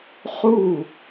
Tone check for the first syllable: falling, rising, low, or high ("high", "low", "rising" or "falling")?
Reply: falling